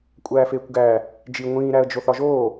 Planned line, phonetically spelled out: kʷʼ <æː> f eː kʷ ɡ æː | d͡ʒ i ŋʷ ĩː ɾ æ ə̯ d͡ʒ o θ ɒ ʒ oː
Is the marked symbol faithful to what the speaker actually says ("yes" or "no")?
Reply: yes